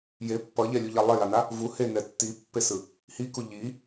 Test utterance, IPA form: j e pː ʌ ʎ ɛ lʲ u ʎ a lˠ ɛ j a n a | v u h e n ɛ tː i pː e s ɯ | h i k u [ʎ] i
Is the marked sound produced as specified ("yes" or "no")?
yes